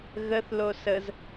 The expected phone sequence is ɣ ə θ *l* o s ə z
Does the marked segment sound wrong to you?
no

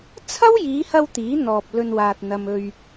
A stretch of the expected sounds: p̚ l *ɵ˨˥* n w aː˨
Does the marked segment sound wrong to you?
yes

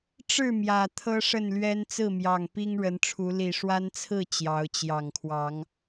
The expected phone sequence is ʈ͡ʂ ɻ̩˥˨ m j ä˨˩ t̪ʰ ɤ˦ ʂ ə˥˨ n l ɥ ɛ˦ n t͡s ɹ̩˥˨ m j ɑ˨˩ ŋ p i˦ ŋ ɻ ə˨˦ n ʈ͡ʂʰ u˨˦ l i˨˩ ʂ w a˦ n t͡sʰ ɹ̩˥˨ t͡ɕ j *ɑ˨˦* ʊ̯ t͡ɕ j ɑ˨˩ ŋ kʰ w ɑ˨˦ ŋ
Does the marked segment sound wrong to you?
no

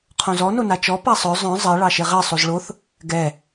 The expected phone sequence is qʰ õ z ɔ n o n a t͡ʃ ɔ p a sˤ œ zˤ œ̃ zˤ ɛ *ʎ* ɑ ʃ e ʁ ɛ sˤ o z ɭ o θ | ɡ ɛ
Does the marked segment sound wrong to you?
yes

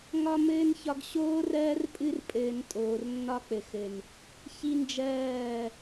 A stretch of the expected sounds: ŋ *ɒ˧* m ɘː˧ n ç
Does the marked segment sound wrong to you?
no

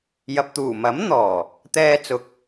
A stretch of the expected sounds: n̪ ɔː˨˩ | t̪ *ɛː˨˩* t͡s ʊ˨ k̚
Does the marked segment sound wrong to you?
yes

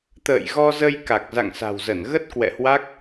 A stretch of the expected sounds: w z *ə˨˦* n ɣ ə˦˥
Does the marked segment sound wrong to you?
yes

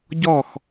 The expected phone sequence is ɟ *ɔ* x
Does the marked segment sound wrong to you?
no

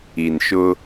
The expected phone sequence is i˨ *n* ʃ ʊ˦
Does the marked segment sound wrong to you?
no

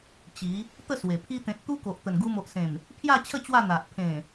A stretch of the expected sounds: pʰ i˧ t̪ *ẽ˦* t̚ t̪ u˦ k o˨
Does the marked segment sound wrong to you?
yes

